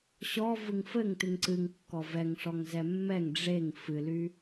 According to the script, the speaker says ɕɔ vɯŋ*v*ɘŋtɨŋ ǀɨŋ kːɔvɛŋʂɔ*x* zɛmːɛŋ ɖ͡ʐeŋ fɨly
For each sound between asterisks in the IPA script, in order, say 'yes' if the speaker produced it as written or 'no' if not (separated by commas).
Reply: no, no